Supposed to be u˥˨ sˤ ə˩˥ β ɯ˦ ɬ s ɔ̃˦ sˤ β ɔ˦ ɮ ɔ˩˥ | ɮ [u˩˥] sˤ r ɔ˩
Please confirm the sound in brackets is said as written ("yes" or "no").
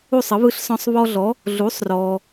yes